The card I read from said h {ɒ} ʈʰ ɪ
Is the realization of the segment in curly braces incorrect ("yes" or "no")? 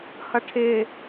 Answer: yes